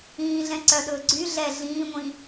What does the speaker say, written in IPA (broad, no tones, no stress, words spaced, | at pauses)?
ĩːɮɛ̃ ǀœɗɵː ɡ͡ǀy ɮɛ ɮĩːŋʷĩ